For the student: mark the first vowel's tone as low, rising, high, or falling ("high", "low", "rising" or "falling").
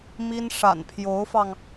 high